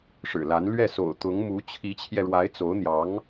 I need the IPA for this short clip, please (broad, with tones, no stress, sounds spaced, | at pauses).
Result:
ʂ ɻ̩˨˩ l a˧˥ n l ɥ ɛ˥˩ s o̰˨˩ ʊ̯ t̪ ʊ˧˥ ŋ m u˧˥ t͡ɕʰ i˧˥ t͡ɕʰ j ɛ˧ ɻ w a˧˥ ɪ̯ t͡s o˧˥ ʊ̯ n̪ j ɑ˧˥ ŋ